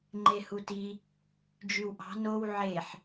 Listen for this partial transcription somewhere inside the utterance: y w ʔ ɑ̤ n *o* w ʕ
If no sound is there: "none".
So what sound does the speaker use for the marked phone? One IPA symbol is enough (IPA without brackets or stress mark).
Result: o